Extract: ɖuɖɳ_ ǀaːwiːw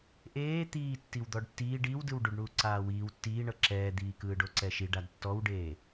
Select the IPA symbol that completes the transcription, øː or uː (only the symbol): uː